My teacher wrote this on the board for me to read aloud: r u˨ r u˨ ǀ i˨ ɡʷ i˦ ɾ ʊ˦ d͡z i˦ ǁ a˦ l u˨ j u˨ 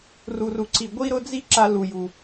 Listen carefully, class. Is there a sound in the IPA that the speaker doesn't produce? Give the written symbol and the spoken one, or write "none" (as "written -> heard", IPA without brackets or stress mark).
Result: none